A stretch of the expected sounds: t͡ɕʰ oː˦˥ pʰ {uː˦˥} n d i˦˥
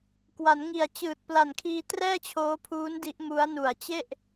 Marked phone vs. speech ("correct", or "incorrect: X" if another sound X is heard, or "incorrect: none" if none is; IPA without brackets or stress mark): correct